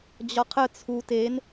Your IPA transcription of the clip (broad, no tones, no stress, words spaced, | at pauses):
d͡ʑɒqʰə t͡sʰu ten